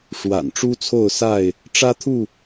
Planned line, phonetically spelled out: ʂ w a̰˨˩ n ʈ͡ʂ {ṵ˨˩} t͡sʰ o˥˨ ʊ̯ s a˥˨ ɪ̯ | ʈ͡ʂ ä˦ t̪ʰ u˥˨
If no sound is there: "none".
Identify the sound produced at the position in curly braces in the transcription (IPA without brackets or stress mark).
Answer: u˦